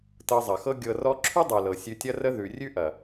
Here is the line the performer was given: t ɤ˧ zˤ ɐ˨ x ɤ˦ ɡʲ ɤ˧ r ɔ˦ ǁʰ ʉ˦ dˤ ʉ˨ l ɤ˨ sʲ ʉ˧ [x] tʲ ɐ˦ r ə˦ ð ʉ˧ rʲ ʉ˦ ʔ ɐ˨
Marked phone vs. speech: incorrect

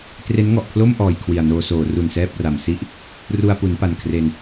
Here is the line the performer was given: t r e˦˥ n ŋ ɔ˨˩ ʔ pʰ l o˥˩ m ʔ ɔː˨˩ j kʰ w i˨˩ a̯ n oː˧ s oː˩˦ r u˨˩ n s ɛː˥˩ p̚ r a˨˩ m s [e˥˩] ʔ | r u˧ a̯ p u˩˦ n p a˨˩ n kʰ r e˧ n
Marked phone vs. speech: incorrect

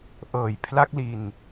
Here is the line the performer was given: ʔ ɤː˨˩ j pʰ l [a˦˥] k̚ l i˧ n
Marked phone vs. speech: correct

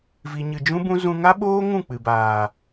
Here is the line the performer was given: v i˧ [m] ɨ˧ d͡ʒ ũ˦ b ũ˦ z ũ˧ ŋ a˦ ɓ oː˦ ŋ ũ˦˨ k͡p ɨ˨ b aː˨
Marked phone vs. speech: incorrect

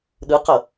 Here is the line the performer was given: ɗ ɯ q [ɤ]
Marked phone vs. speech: correct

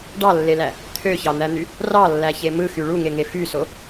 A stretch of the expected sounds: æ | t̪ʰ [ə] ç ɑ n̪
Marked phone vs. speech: incorrect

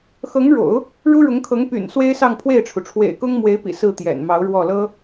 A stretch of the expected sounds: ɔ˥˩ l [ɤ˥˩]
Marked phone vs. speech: incorrect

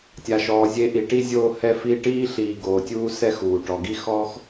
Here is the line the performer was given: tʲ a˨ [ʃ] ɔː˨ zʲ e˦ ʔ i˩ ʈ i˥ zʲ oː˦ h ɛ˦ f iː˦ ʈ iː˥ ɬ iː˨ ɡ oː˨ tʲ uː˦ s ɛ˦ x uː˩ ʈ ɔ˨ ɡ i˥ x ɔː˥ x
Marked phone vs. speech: correct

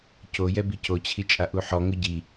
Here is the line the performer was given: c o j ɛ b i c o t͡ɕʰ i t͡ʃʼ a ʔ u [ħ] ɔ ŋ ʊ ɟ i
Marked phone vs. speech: correct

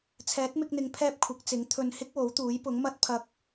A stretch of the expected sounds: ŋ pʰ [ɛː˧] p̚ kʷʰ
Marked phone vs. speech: incorrect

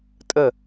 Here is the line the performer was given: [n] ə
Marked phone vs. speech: incorrect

